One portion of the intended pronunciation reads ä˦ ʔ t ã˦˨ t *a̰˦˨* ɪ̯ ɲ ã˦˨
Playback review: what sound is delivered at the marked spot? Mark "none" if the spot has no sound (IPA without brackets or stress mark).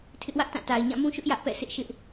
a˨